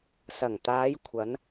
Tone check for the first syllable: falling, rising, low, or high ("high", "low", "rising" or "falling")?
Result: low